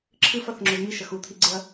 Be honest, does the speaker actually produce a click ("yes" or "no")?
yes